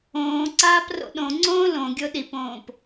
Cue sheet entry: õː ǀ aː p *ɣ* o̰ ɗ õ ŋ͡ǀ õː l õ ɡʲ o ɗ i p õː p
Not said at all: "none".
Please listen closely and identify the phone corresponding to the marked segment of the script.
r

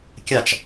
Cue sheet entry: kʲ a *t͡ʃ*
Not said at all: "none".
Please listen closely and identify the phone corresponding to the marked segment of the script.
t͡ʃ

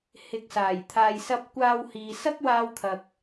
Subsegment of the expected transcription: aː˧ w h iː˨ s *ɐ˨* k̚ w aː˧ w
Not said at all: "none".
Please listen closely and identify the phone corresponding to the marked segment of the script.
ɐ˥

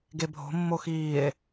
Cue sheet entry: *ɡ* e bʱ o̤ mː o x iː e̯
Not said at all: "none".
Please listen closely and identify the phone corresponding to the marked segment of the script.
ɡ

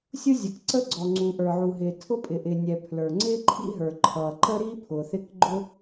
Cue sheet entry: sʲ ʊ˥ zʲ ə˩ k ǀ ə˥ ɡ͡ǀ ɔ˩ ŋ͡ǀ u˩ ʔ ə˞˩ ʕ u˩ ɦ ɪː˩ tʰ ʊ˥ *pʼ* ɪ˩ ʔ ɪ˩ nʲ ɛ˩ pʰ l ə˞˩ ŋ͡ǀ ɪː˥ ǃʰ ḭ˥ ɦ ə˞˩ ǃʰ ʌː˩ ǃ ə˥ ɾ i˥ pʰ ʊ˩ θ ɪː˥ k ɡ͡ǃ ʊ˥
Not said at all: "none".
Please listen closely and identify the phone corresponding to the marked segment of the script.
pʼ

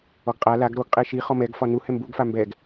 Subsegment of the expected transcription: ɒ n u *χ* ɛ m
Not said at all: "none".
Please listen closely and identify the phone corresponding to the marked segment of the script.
h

